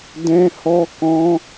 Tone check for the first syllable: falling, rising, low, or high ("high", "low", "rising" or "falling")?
high